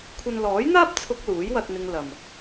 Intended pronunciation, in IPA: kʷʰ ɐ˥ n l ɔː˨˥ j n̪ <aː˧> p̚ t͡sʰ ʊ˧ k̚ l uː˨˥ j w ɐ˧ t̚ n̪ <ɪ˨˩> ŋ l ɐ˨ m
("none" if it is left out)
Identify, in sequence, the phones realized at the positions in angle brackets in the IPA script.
aː˥, ɪ˧

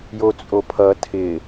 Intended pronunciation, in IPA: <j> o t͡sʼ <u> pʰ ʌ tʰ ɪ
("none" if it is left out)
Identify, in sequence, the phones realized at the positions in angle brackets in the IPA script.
j, o

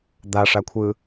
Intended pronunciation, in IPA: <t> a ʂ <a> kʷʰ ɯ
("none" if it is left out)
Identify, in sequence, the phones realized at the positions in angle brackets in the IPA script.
d̪, a

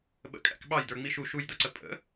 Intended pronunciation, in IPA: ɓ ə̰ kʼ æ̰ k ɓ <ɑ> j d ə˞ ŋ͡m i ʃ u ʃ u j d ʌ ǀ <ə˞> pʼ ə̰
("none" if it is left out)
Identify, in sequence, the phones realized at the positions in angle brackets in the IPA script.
ɑ, ə

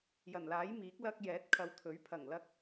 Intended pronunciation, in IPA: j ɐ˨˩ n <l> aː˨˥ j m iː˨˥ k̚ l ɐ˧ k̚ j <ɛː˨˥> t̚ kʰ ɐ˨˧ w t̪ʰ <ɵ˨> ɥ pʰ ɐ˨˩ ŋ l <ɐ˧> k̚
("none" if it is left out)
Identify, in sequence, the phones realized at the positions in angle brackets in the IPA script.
l, ɛː˨˥, ɵ˨˥, ɐ˧

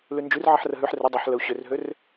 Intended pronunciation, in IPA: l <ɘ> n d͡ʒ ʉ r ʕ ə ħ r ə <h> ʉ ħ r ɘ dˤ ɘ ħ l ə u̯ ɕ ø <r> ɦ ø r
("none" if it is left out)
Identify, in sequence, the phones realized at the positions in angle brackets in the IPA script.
ʉ, ɦ, r

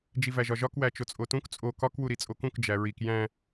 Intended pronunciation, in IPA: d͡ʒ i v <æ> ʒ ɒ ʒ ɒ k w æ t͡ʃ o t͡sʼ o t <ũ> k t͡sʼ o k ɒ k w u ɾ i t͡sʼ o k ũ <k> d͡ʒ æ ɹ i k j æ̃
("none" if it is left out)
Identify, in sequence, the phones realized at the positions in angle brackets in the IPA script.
æ, ũ, k

